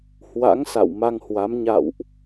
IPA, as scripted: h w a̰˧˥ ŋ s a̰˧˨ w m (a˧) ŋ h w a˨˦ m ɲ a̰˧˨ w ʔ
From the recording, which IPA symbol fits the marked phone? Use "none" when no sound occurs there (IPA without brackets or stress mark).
a˧